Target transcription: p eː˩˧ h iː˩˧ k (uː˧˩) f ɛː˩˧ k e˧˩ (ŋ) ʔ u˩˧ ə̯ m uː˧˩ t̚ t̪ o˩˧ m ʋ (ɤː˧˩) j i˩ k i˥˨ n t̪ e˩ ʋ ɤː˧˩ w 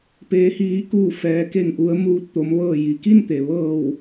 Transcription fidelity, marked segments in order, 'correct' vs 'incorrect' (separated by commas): correct, correct, correct